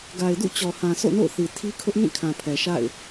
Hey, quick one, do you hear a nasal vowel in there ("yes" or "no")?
yes